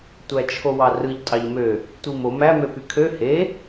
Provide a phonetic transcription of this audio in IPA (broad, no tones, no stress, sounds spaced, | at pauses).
tʷ æ t͡ʃʰ o w ɑ r ɯ ʎ tʼ ɑ ʎ m ø | tʷ i m o m æ m ø p y kʰ ø h e